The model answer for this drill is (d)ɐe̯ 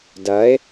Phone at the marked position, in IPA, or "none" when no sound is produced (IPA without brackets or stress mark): d